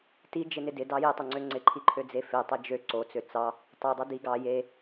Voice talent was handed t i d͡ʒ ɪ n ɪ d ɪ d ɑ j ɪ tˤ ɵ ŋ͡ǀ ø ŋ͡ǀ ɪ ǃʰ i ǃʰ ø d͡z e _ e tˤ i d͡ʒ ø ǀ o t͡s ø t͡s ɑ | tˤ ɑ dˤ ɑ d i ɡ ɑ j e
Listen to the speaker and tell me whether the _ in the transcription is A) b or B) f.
B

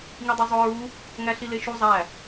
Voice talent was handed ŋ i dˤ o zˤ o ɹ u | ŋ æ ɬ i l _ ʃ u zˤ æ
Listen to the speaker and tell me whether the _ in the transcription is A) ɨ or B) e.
B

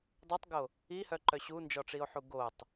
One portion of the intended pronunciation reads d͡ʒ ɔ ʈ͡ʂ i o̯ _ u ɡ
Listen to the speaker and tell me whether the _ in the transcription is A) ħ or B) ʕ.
A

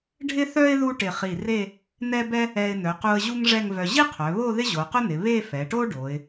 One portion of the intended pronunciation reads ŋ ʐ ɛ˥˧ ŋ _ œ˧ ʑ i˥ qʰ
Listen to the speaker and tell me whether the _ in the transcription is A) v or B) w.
A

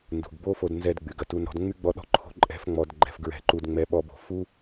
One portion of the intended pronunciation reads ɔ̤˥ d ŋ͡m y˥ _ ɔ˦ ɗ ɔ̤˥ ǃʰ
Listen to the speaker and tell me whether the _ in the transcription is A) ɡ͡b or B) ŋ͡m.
A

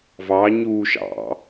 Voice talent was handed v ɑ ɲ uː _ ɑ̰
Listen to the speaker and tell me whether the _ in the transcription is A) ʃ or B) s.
A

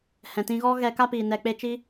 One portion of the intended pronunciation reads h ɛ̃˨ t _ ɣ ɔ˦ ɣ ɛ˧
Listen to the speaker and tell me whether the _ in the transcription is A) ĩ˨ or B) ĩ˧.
B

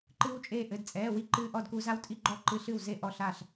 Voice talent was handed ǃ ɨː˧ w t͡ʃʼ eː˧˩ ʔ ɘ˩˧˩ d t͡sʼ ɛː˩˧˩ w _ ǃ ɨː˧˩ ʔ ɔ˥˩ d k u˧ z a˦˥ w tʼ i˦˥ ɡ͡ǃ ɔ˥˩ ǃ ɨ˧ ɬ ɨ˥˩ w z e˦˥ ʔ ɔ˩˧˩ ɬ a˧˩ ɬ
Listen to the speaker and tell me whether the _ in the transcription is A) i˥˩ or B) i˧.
A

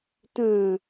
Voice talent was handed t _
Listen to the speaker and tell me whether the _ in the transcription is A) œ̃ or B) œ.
A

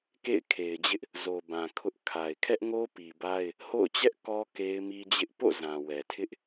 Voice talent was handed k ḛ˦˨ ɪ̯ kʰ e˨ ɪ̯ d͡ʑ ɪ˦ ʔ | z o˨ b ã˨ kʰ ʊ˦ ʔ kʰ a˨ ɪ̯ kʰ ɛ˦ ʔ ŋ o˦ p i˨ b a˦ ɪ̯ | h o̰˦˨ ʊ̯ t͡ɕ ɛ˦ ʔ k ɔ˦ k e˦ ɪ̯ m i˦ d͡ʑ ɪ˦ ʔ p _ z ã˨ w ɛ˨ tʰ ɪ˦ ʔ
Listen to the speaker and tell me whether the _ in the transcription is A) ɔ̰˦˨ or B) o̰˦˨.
B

